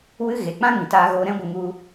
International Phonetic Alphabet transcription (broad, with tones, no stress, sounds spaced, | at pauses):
w ɨ˦ ɣ e˨ k͡p ã˦ ŋ ĩ˨ t aː˧ ɣ oː˧ ɾ ɛ̃˦ ɡʷ ə˧ ŋ u˧